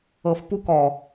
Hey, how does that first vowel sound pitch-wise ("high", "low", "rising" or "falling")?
low